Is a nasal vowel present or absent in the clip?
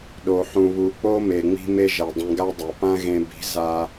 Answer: present